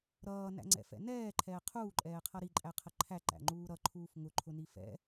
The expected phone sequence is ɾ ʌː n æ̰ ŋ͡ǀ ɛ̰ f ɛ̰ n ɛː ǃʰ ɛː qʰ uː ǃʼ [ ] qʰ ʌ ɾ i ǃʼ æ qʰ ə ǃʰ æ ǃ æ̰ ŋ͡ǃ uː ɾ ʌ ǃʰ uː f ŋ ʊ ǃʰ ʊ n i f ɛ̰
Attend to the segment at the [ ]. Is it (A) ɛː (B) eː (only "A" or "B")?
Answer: A